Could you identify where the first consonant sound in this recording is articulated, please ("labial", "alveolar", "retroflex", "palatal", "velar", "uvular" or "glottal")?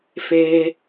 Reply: labial